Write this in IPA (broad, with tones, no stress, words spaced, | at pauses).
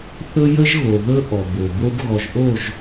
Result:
θɵ˦jə˦ʒɣo˨ ðɵ˦ ʔɔ˨bo˨bo˦b ɣɔ˨ʒʔo˦˨ʒ